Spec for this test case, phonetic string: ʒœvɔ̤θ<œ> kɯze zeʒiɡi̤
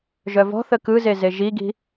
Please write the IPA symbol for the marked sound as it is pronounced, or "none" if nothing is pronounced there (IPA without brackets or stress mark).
ə